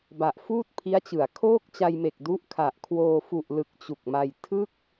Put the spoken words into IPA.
b a˨˩ ʔ f uː˥˩ t̚ pʰ i˦˥ a̯ t͡ɕ ɯ˩˦ a̯ kʰ oː˥˩ k̚ t͡ɕ a˧ j m e˨˩ k̚ d u˦˥ ʔ kʰ a˨˩ ʔ kʰ w oː˧ f u˨˩ ʔ l ɯ˨˩ k̚ t͡ɕ u˨˩ k̚ m a˧ j tʰ ɯ˥˩ k̚

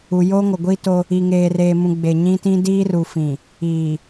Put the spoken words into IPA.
u˨ j oː˦ ŋ o˨ ɡʷ iː˦ t o˦ | i˨ ŋ eː˨ r eː˨ m ũ˨ ɡ͡b e˨ ɲ ĩ˦ t ĩ˦ d iː˦ r u˨ f ĩ˨ | iː˨

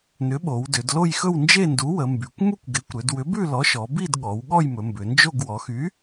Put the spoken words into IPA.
n ʏ˨˥ ɓ o˩˧ w d ʏ˩˧ d l o˥˧ j x ɵ˥˧ w n d͡ʒ e˥˧ n d u˨˥ w ə˩˧ m b y˩˧ kʷ m u˥˧ kʷ ɡ e˨˥ kʷ ɾ ʏ˩˧ d w ʏ˨˥ b ʉ˥˧ l ɔ˨˥ ʃ ɔ˩˧ b i˥˧ d ɠ ɔ˩˧ w ɠ ɔ˥˧ j m ɵ˩˧ m b ʏ˩˧ n d͡ʒ o˥˧ ɡ w ɔ˩˧ x y˨˥

